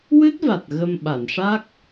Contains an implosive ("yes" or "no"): yes